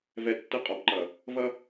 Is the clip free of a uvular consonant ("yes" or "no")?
no